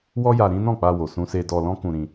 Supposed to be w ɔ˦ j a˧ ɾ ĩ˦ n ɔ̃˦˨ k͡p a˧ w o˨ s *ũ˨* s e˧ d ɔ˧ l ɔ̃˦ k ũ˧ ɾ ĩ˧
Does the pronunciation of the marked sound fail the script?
yes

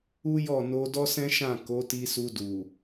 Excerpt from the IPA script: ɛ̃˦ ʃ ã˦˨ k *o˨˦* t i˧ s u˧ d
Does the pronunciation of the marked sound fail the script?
no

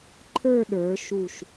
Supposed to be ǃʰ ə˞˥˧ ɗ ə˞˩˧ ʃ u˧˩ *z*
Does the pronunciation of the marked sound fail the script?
yes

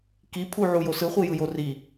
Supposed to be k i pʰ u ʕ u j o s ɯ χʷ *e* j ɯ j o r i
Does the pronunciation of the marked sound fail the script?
yes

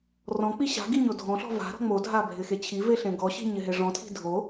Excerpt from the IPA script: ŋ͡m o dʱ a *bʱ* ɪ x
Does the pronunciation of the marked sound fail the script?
no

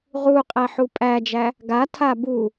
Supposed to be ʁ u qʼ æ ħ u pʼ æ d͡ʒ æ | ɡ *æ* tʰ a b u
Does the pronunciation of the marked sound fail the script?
yes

